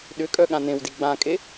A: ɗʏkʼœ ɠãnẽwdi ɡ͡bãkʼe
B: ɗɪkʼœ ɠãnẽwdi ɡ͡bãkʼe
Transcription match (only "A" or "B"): A